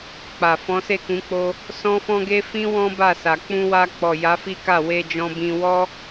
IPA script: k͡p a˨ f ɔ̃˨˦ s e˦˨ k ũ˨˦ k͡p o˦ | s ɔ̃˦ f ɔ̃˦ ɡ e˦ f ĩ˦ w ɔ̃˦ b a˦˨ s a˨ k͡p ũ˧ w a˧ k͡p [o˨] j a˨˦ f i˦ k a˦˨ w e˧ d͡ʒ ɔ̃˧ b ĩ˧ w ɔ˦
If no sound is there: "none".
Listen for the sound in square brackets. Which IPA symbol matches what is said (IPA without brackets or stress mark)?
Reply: ɔ˨